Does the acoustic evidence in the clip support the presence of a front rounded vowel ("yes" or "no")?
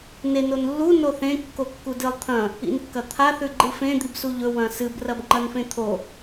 no